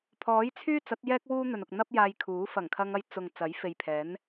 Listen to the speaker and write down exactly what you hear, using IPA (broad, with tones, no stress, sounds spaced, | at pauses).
pʰ ɔː˨˥ j t͡sʰ yː˥ t͡s ɐ˨˥ t̚ j ɛː˥ k̚ w uː˥ n̪ ɵ˨ n ʊ˨ k̚ n̪ ɐ˥ p̚ j aː˧ j kʰ uː˨˥ f ɐ˨˩ ŋ kʰ ɐ˧ ŋ ɐ˧ j t͡s ʊ˨ ŋ t͡s ɐ˨˥ j f e˨ j pʰ ɛː˨˥ n